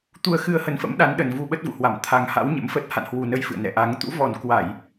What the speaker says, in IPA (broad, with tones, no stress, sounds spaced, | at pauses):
t̪ u˧ ə̯ x ɨ˧ ə̯ h ə˨˦ n f ə̰˧˥ m ɗ a˨˦ n ɗ ə˨˩ n v u˧ ɓ ə˦˥ t̚ v ṵ˧˨ h w a˧˩ m t̪ʰ a˨˩ ŋ h a̰˧˥ w ɲ ə̰˧˥ m f ə˦˥ t̚ h a̰˧˨ n h w u˨˩ n ə˨˦ j f ɨ̰˧˨ ə̯ n ɛ̰˧˨ ʔ a˨˦ ŋ t̪ ṵ˧˥ v ɔ˨˩ n k w a˧˩˨ j